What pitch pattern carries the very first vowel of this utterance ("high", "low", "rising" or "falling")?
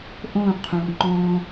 falling